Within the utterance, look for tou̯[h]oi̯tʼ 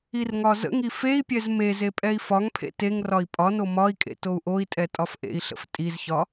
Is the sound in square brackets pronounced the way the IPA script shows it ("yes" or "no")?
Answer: no